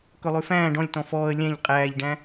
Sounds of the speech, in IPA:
kɵlˠʉfæ̃ːɖ ɔ̃lʲ tɔ̃fɔːə̯ lʲæ̃ʎ qʼæːʎɖæ̃

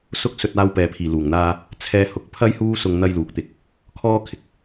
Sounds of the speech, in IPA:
sʊ˥k̚sɵ˧t̚ aː˧wpɛː˨pʰiː˨˩ luː˨˩ŋn̪aː˧ | t͡sʰɛː˧hʊ˨˥k̚pʰɐ˥j huː˥sʊ˧ŋ n̪ɐ˥jluː˨˥k̚t̪ɪ˨k̚ | kʰɔː˥kʰɪ˧k̚

